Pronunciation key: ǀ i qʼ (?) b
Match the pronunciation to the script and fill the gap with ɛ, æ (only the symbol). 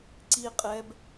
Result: ɛ